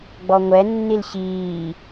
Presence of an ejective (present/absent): absent